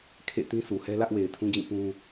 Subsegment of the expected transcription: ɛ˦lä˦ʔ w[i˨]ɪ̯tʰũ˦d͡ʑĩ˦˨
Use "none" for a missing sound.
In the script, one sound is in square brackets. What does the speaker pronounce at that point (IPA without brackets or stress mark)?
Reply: e˨